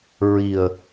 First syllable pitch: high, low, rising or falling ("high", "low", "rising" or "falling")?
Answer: low